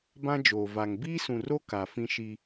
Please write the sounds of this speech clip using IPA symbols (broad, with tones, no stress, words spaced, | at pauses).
bã˦d͡ʒoː˨ va˨ŋ biː˦sũ˨ro˦ ka˨fĩ˦ʃi˦